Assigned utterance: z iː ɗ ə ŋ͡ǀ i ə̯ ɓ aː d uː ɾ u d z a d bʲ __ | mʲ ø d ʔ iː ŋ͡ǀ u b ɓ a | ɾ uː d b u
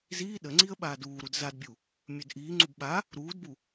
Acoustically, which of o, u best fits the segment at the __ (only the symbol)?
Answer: u